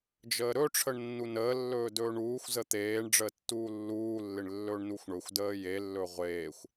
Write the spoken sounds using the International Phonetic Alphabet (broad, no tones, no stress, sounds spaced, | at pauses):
d͡ʒ əː ɾ ɵ ʈ͡ʂʰ ə ɳ nː u n əː lː ɵː d ɵː ɳ uː xʷ z ə t̪ eː ɳ ɖ͡ʐ əː tː uː lː uː lː ɪ ɳ lː ɵː ɳ n u xʷ ɳ ɵ xʷ d əː j e lː ɵ ʁʷ eː xʷ